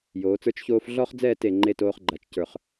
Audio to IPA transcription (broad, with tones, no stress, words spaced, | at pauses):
joː˩˧t͡sə˞˥t͡ʃçoː˥f ɮɔ˥χd͡zɛː˥˧t e˧˩ŋ͡ǃe˥˧ toː˥χɡ͡ǃa˧˩t͡ʃcə˞˧˩χ